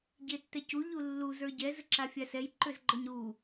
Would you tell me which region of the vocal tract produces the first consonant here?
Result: palate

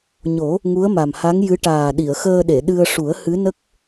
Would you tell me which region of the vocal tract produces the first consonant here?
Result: palate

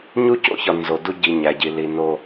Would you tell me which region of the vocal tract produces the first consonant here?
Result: palate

